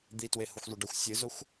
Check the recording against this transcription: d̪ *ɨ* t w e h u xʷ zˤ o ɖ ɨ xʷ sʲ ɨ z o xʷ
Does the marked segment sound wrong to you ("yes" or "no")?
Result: yes